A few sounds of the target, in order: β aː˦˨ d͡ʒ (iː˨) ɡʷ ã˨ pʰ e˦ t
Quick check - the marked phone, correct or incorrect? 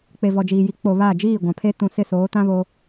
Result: incorrect